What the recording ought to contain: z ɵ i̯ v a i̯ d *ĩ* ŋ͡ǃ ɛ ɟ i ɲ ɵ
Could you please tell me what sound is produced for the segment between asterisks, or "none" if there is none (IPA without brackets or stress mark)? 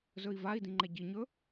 ĩ